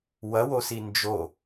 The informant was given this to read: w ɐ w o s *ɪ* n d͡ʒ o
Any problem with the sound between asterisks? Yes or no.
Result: yes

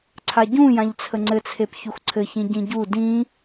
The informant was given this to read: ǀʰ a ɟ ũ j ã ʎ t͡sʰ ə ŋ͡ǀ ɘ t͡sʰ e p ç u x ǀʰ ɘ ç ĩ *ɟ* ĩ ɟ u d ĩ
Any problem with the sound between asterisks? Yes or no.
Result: no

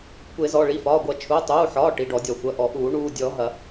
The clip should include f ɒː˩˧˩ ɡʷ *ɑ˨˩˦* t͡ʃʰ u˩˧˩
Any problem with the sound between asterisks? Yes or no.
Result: yes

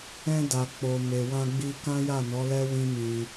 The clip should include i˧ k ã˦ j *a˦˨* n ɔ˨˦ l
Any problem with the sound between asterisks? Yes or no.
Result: no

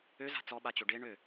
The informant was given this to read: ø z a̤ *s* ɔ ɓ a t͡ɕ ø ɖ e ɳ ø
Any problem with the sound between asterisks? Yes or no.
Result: yes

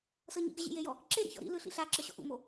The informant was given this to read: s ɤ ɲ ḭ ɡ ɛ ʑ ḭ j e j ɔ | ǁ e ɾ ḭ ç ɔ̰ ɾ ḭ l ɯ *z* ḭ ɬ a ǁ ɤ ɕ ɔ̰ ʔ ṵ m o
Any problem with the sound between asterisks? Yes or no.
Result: yes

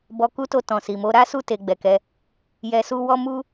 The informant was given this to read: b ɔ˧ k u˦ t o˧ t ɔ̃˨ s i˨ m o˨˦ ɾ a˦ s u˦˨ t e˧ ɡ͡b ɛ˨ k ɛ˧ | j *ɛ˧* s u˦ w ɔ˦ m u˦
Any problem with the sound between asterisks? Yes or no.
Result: no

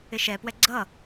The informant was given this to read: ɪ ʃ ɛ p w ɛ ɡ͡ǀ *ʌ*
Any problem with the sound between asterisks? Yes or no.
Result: no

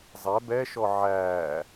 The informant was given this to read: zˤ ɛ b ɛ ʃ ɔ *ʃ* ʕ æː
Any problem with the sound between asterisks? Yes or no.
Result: yes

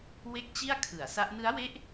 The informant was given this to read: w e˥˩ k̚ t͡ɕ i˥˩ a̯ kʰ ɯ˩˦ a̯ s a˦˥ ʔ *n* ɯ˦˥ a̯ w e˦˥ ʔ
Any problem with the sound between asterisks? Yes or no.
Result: no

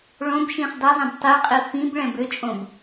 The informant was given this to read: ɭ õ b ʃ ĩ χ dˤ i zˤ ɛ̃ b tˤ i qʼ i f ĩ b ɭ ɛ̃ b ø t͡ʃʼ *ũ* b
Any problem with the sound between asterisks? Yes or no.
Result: yes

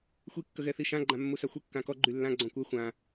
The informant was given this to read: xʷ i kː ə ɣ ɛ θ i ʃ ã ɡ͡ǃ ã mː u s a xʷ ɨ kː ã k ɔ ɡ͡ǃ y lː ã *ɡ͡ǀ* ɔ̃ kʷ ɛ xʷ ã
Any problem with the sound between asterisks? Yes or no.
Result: no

